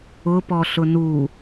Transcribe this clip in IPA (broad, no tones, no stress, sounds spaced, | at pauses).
ʊ p ɔ ɬ ʊ n u